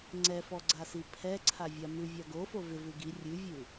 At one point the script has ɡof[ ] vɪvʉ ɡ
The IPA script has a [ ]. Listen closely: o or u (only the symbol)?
o